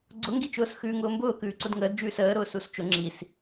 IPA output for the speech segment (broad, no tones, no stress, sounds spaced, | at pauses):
ɡ͡ǀ ʊ ŋ ɡ i t͡ʃ ʊː s x ʉː ŋ ʊː m b ʊː k ʉː ǀ ʊ d ŋ əː d d͡ʒ ʉː s əː ɾ ʊː s u s t͡ʃ ʊ ŋ͡ǁ i s